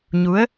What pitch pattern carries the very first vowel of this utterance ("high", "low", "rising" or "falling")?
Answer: rising